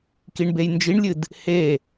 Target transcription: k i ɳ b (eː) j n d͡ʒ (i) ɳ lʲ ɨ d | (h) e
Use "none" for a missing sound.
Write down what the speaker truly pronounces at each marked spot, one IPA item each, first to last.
e, i, h

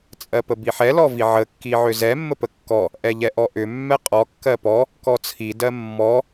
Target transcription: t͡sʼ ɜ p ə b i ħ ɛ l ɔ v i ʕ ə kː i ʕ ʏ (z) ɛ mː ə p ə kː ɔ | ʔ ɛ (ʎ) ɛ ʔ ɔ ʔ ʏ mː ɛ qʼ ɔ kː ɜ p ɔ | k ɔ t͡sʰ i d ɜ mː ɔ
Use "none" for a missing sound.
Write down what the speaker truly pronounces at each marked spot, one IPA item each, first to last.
z, ʎ

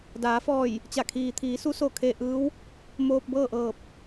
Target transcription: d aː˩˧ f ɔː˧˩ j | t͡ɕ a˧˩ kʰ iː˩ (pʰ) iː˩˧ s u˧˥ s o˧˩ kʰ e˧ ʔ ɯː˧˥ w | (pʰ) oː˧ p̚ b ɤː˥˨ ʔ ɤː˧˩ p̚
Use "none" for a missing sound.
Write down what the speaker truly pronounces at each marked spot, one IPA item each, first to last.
t̪ʰ, m

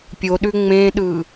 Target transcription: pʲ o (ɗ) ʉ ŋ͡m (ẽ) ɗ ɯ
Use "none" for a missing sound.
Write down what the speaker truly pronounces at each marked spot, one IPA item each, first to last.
ɗ, ẽ

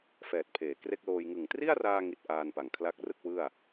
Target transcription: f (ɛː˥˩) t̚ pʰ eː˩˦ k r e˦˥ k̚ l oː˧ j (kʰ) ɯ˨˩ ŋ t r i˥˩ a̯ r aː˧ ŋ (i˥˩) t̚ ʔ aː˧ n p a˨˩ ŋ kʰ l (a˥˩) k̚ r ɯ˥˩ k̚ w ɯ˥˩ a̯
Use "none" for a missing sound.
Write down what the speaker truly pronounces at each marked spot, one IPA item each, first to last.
ɛː˨˩, ŋ, i˨˩, a˦˥

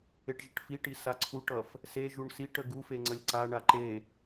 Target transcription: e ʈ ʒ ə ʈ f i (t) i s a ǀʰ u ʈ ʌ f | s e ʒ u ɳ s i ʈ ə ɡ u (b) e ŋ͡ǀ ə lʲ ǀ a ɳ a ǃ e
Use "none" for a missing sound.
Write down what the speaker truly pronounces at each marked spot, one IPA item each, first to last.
ʈ, f

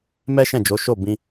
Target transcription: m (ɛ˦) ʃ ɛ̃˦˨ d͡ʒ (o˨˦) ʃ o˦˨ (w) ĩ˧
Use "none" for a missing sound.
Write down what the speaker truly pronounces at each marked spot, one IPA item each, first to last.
ɛ˦, o˨˦, b

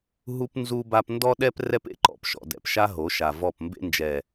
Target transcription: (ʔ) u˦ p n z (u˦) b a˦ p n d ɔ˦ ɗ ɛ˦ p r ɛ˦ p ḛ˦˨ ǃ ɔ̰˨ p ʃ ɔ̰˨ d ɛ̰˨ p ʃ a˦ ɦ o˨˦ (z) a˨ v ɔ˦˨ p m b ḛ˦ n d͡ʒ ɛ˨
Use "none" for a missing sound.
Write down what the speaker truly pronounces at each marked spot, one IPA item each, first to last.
ɦ, u˦, ʃ

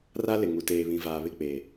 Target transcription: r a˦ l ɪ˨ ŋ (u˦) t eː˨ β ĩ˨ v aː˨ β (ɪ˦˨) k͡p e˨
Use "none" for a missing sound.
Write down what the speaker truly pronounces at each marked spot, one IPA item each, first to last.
u˨, ɪ˦˨

